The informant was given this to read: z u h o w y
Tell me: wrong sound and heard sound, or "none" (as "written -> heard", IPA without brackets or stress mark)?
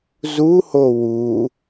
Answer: y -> u